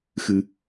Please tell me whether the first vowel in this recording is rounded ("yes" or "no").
no